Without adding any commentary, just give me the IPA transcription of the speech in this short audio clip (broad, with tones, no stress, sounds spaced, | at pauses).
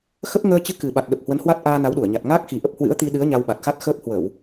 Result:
x ə˦˥ p̚ ŋ əː˧ t͡ɕ ɨ˧ k ɨ˨˩ ɓ a˨˩ t̚ ɗ ə˨˩ p̚ h w ə˨˦ n h w a˦˥ t̚ ʔ aː˧ n a˨˦ w ɗ u˧˩ ə̯ ɲ a˨˩ t̚ ŋ aː˦˥ k̚ x i˨˩ ʔ ə˦˥ p̚ h w ɨ̰˧˥ ə̯ t̪ i˧ ɗ ɨ˨˦ ə̯ ɲ a˧ w ɓ a˨˩ t̚ x a˦˥ t̚ x əː˦˥ p̚ h w ə˧˩˨ w